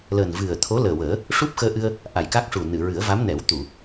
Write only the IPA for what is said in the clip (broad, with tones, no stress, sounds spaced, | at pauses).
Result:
l əː˨˩ n v ɨ˨˩ ə̯ t̪ʰ o˧˥ l əː˨˩ w əː˨˩˦ | ʂ u˦˥ p̚ x əː˧ ʔ ɨ˧ ə̯ | ʔ a˨˩ j k a˦˥ k̚ ʂ u˨˩ n ɨ˨˩˨ ɹ ɨ˨˩˦ ə̯ v a˧˥ m n ɛ˨˩˦ w t̪ u˨˩˨